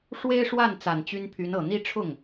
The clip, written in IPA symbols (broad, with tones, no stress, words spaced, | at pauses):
ʂwe˥ɪ̯ʂwa˥˩n t͡sa˨˩nt͡ɕy˥npʰy˧˥nɤ˨˩ n̪i˥˧ʈ͡ʂʰʊ˥˩ŋ